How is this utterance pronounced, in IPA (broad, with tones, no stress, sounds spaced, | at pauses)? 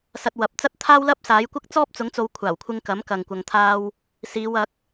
s ɐ˧ t̚ w ɐ˨˥ p̚ t͡s ɐ˥ t̚ t̪ʰ aː˥ w l ɐ˥ p̚ s aː˨˥ j kʷ ɐ˥ k̚ t͡s ɔː˥ p̚ t͡s ʊ˨˥ ŋ t͡s o˨˧ w kʷʰ aː˨˩ w kʷʰ ɪ˧ ŋ k ɐ˨˥ m k ɐ˨ ŋ kʷ ɐ˨ ŋ t̪ʰ aː˧ w | s iː˨˧ w ɐ˨˥ k̚